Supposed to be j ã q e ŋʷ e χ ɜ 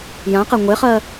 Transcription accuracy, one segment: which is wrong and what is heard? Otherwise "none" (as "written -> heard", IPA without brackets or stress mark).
none